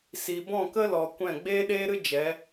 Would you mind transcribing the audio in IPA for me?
s i˨ b ɔ̃˦˨ k ə˦ l ɔ˨ kʷ ɛ̃˦˨ ɡ͡b eː˦ ɗ eː˦ ɾ ɨ˦ d͡ʒ ɛ˨˦

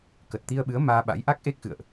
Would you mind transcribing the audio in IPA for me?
k ə˨˩ t̚ t̪ i˧ ə̯ ɓ ɨ˨˦ ə̯ m aː˧ ɓ a̰˧˥ j ʔ a˦˥ k̚ ʔ e˦˥ k̚ x ɨ̰˧˨ ə̯ ʔ

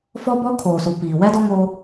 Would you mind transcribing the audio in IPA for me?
f ɔ˦ b ɔ˦ kʰ oː˨ s u˨ p iː˨ w ɛ˦ d ɔ˦ ŋ o˦

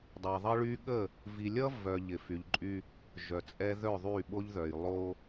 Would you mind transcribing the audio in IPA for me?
dˤ ɛ˨ ðˤ ʌ˦ ɭ y˦ ɠ ə˦˨ | v i˨ lʲ ʌ˦ v œ˨ ʎ ɪ˨ f y˨ ʎ ǃʼ y˦ | ʒ œ˨ t͡sʼ ɛ˦ ð œ˦˨ ðˤ y˦˨ ɓ o˦ ʎ ð œ˨ j lˠ o˦

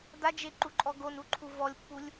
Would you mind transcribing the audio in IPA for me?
d̪ a d͡ʒ e ǃ u ǃʼ ɔ ɡ o n u ǃʰ u v ɔ lʲ pː u lʲ

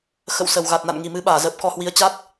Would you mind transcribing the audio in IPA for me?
x ə̰˧˨ w s ə˨˩ w ɣ a˨˩ t̚ n a̰˧˨ n ŋ i˨˩ m ɨ˨˦ ɓ aː˧˩ z ə˨˩ p̚ k ɔ˧ h w i˨˦ ə̯ t͡ɕ a˦˥ t̚

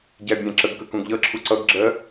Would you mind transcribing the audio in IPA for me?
ɟ æ bʲ æ̃ ǁ ə ɡ k ə k ũ ɡ ʎ ʌ ǁʰ u ǀ ʌ ɡ ɡ͡ǁ ɜ

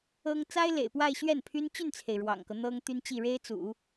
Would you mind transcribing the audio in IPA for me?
ɤ˥ ŋ t͡s a˥ ɪ̯ l ḛ˨˩ ɪ̯ p w a˥˧ ɪ̯ ɕ ɥ ɛ˥˩ n pʰ y˥ n t͡ɕ y˥˩ n t͡sʰ e˩ ɪ̯ ɻ w ɑ̰˨˩ ŋ k ɤ˦ n̪ ɤ˥ ŋ t̪ y˥ n t͡ɕ i˥˩ ɻ e˥ ɪ̯ t͡s ṵ˨˩˦

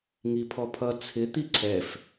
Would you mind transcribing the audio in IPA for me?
ŋ i pʰ ɔ pʰ ʌ t͡sʰ ɪ t̪ i ǀʰ ɛ f

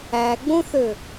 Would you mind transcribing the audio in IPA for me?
æ ɡ͡b õ θ ø

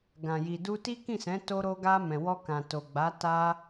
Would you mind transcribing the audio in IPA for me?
ɡ ã˨ j i˨ d u˧ t i˦ k ĩ˦˨ s ɛ̃˨˦ t o˧ ɾ o˧ ɡ a˧ m ɛ̃˨ w ɔ˧ k ã˨ t o˨ ɡ͡b a˨˦ t a˦

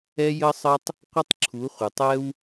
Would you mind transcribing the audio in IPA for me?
ɛ˦ j ə˦ sˤ ə˦ tˤ | qʷ ə˦ tˤ ǁʰ u˨˦ χʷ ə˨ tˤ ɛ˦ w

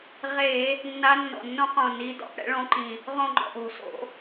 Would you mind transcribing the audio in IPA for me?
ʁ e˧˩˧ | nː a˧˥ nː ɔ̰˨˩ nː õ˥ q õ˦˨ n i˧˥ d ɔ̰˨˩ p ɽ ɛ̰˥ ɭ õ˧˥ ǃ ĩ˨˩ | ʁ õ˦˨ ŋ͡ǃ ɔ̰˦˨ ʔ o̤˨˩ s o̰˧˩˧

